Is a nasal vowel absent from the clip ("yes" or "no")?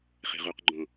no